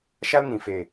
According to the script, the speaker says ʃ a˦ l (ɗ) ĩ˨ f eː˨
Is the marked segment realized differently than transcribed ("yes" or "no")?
yes